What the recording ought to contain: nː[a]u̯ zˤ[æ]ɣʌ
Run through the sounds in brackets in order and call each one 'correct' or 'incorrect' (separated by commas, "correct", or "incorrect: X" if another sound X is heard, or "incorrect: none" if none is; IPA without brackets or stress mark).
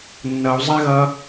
incorrect: ʌ, incorrect: a